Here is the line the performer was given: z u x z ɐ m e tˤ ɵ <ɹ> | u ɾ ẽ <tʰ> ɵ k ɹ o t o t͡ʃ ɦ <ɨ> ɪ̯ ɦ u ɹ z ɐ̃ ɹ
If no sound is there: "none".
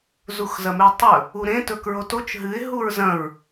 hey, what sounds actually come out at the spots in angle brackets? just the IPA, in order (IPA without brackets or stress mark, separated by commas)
none, t, ɨ